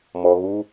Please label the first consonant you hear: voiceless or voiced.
voiced